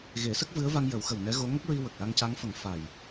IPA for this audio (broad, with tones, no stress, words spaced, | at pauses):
ɣe˨˩˦sə˦˥k̚vɨ˧˥ə̯va˧ŋ jə˨˩˦wxə˨˩w nɛ˧˥ɣo˧˥ ŋə˦˥k̚ɹi˧ wə˨˩k̚la˧ŋca˧˥ŋfə˨˩˦ŋ fa˨˩j